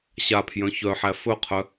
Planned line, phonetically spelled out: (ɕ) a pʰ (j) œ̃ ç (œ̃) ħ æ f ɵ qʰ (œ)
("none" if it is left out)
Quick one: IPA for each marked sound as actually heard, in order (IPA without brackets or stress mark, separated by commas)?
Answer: ɕ, j, œ, œ